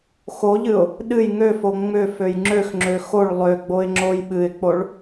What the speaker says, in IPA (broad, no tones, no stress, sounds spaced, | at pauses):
x o ʎ ɨ ʊ̯ | ɗ ɨ j ŋ ø f o ŋ͡m ʏ f ø j ŋ͡ǁ ø x ŋ͡ǁ ø x o ɭ lˠ ø ɡ͡b o ɪ̯ ŋ͡ǁ o j ɓ ɨ ɪ̯ k͡p o ɭ